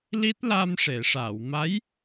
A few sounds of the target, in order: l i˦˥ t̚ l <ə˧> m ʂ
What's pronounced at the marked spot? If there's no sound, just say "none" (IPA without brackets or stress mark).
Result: a˧